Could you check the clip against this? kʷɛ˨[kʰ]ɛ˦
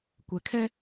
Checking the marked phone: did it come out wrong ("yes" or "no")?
no